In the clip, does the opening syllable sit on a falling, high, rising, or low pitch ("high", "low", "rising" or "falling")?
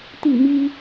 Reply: falling